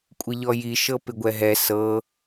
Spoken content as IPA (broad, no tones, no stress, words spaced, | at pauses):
kʷʼɪʎɔji ʃɤpɪɡʷɛɦɛ sɤ